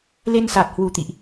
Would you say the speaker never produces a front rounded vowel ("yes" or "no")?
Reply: yes